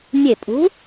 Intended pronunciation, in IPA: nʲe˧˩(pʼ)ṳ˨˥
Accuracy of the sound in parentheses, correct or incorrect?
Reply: correct